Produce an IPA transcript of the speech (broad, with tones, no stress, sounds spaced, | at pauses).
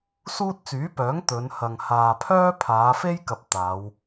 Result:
s uː˥ t̚ t͡s yː˨˥ p œː˨˥ ŋ t̪ ɵ˨˧ n h ɐ˨ ŋ h aː˨ pʰ œː˥ pʰ aː˨˧ f e˥ j k ɐ˨ p̚ t̪ aː˨˧ w